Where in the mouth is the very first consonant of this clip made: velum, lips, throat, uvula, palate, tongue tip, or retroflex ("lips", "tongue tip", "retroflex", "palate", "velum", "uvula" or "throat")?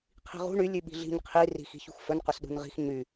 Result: uvula